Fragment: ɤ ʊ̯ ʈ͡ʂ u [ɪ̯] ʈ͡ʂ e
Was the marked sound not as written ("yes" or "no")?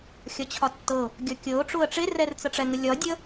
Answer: yes